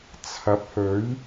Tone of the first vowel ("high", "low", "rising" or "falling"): rising